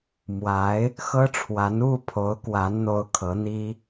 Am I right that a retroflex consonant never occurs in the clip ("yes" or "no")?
no